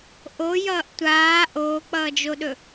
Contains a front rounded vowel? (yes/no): no